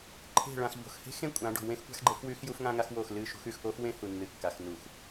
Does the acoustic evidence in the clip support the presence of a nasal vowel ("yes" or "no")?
yes